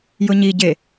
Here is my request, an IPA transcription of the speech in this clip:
j ʊ ɲ i ɟ e

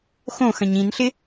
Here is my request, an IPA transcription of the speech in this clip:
x õ x ɐ̃ ɲ ĩ n ɬ ɪ

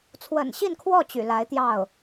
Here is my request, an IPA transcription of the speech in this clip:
t͡sʰ w ə̰˨˩ n ɕ i˥˧ n kʰ w ɔ˥˩ t͡ɕ y̰˨˩ l a˧˥ ɪ̯ t̪ j ɑ˥˩ ʊ̯

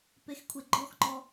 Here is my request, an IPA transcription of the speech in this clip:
p e x kʷʰ e ɡ͡ǃ ɔ x ŋ͡ǃ ɔ

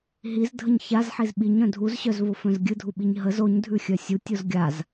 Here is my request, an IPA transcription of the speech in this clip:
ɦ i z dʱ ə ɲ ç a z ħ i z ɓ i ɲ œ̃ dʱ u z ɕ œ z v o f œ̃ z ɡʲ ɨ dʱ u ɓ i ɲ ɦ ə z o ɲ dʱ ʉ xʲ œ sʲ u tʲ o z ɡʲ a z

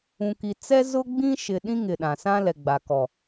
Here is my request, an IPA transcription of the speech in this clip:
ũ˨ k i˨ t͡s ɛ˦ z ʊ˦ ɡ͡b ĩ˦ ʃ ɪ˨ ɗ ĩ˦ ŋ ɪ˨ ɗ ã˨ s ã˦ l ɛ˨ ɡ͡b a˨ k ɔ˨

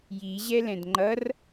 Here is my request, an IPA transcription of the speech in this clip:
j i ʑ ɛ l ɛ̃ d ŋ͡ǃ ʌ r

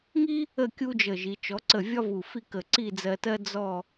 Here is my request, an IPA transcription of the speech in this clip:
ŋ i˥ | ə˥˧ kʲ u˥ d͡ʒ ə˧˩ ʒ i˩˧ t͡ʃ ɔ˩˧ ǀ ə˧˩ vʲ ɒ˥ v u˧˩ f i˥˧ k ə˧˩ ǀ i˥˧ d͡z ɜ˧ t ɜ˥ d͡z ɔ˥˧

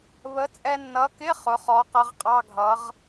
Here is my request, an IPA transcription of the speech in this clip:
β ə˨˥ t͡sʼ ɛ˧ nː ʌ˨˥ k ɪ˧˥˧ χ ʊ˩˧ χ ɔ˨˥ q ʌ˨˥ ʁ qʼ ɑ˧˥˧ ɡʱ ʌ˨˥ ʁ

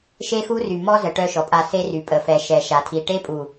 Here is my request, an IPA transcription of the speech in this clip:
ʃ e˦ x u˦ r y˨ m ɔ˦ z ə˨ ʈ œ˦ ʃ ɔ˨ pʼ a˦˨ s e˦ r y˨ pʼ ə˨ f ɛ˨ ʃ ɛ˨ ʃ a˨ tʰ i˨ ʈ e˦ pʼ u˨

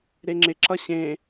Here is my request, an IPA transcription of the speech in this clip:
ɾ e ŋ͡ǁ ɪ ǁ ʌ ɕ ẽ

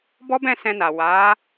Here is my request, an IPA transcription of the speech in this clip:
b ɔ˦ b ɛ̃˦˨ s ɛ̃˧ n a˨ w a˨˦

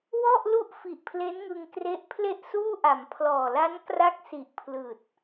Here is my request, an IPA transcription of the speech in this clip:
w ɔ˥˩ ʔ l u˥˩ ʔ f i˨˩ ʔ pʰ l e˦˥ n ŋ ɯ˧ ŋ k r e˦˥ ʔ pʰ l e˥˩ ʔ s uː˥˩ ʔ a˩˦ m pʰ l ɔː˨˩ l a˦˥ n k r a˦˥ k̚ s i˨˩ ʔ pʰ l ɯː˨˩ t̚

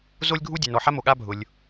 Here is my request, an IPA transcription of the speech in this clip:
z o˥ lʲ ɡʱ u˥ dʲ ɛ˩ n ɔ˩ ħ a˥ m o˩ ɠ a˥ bʱ ʊ˩ lʲ

